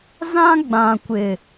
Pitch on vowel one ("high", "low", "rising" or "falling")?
high